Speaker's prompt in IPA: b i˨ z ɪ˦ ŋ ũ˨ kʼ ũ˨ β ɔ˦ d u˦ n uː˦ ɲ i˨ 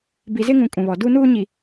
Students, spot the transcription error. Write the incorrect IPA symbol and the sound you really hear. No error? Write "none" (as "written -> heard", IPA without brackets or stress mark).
ɔ˦ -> ɔ˨